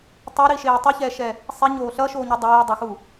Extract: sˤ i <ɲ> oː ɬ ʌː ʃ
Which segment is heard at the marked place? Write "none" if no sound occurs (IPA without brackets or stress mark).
ɲ